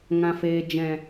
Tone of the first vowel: low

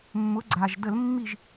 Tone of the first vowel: rising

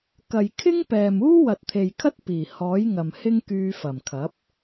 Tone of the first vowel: low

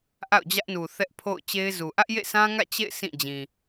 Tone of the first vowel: falling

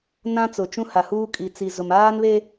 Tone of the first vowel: high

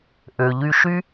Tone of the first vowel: low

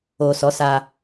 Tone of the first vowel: low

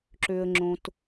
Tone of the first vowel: low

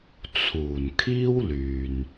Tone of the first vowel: low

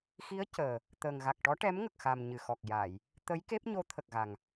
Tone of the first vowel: rising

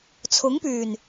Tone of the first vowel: rising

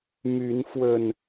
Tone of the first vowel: rising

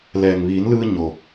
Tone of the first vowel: low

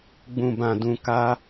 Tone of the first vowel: low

